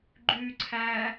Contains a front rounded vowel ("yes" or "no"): yes